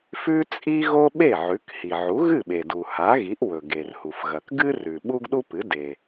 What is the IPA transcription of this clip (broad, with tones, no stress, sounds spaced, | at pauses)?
f ʉ˥ t͡sʼ i˥ ɣ o˥ ɓ e˥˩ ʕ ʉ˩˥ k h i˩ ʕ u˩˥ ɣ ɨ˥˩ ɓ e˩ d u˩ h a˩˥ ɣ i˩˥ ʔ w ɵ˩ ɡ e˩ r h u˩ f ɣ ɐ˩ k ɡ ɨ˥ r ʉ˩ ɓ u˥ ɡ ɗ u˥ p ɨ˩˥ d e˩